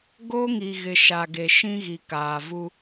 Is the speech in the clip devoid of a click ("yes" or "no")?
yes